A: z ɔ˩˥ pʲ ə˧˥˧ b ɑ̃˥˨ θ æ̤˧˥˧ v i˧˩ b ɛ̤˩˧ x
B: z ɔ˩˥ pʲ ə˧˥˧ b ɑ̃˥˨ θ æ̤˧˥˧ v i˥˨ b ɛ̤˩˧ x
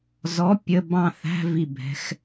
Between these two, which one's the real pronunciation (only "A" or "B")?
A